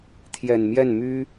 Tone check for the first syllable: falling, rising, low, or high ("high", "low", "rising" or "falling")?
low